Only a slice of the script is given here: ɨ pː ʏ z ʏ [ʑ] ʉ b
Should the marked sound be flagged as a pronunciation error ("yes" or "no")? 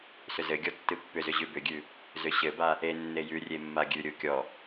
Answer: no